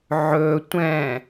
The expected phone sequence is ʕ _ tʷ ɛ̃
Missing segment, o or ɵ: ɵ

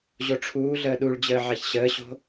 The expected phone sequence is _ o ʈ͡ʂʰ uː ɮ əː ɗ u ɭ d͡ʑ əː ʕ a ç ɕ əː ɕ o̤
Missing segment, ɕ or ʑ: ʑ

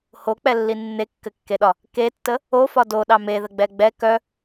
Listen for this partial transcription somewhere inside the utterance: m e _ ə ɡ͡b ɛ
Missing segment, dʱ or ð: ð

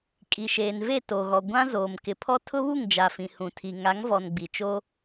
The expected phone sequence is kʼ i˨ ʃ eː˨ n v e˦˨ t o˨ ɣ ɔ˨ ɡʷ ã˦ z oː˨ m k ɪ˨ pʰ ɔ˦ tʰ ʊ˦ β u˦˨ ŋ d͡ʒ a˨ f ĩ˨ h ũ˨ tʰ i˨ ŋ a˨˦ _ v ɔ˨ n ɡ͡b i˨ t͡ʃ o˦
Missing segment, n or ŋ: ŋ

